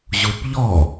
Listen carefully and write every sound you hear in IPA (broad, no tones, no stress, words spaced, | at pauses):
ʑupʎɔ